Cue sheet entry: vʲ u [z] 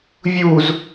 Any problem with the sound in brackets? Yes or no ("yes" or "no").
no